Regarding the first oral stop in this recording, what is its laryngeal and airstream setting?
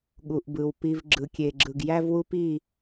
implosive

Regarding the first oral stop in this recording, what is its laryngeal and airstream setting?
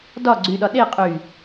plain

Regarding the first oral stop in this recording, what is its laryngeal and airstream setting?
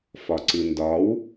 click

